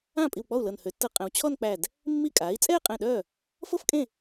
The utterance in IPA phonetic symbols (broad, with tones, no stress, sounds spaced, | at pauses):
ãː˥˩ pʼ i˧˩ w k͡p ɔ˥˩ u̯ l ɤ˧˩ n h ø˩˧ tː ɤ˧˩ qʼ ɛ̃˩˧ w t͡ɕʰ ɔ˥˧ n k͡p æ˧˩ d | mː i˥˩ kʼ aː˩˥ i̯ t͡sʼ ɛː˥˧ qʼ ɛ̃˧˩ ɗ œː˥˩ | f ɤ˥˧ f kʼ ẽ˥˩